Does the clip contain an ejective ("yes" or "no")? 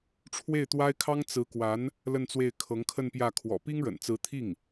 no